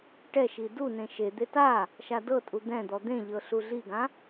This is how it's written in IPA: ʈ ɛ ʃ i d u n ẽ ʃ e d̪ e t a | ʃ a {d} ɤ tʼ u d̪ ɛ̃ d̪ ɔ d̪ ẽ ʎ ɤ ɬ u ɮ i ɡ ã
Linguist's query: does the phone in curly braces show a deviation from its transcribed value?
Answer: no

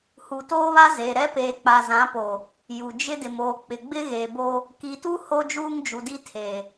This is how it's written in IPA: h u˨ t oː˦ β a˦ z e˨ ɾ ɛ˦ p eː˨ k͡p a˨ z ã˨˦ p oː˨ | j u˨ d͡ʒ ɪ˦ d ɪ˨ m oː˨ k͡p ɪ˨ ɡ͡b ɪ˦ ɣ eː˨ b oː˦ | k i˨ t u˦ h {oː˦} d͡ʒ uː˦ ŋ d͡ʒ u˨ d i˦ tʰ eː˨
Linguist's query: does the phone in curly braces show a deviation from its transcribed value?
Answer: yes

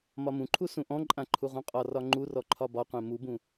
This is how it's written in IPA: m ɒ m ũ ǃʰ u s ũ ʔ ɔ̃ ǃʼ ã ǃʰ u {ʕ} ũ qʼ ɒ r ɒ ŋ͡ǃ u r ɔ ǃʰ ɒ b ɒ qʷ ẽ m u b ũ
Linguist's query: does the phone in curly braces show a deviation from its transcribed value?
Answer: yes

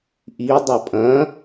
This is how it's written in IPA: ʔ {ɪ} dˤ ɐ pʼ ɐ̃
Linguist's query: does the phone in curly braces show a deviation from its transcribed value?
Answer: yes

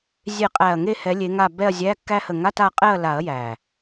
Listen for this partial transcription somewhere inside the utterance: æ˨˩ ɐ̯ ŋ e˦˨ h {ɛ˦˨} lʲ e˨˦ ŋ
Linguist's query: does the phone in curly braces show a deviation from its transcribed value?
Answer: yes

